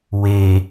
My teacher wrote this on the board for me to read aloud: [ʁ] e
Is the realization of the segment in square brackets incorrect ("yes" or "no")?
yes